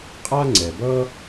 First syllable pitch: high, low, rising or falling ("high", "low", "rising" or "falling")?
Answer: high